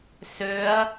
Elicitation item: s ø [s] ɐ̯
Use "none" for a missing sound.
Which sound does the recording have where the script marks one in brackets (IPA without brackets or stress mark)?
none